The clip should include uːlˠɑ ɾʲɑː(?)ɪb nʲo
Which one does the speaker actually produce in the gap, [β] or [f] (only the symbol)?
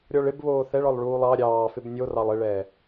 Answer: f